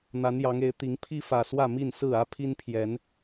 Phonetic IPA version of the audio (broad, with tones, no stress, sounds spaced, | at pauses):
n̪ a˨˦ n j ɑ˨˦ ŋ e˨˦ ɪ̯ t̪ i˨˦ ŋ pʰ i˦ f ä˨˩ s w ä˥˨ m i˥˨ n s ɹ̩˥˨ ä˦ pʰ i˦ n pʰ j ɛ˨˦ n